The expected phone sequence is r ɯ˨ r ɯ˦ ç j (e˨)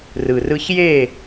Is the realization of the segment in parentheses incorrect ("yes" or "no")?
yes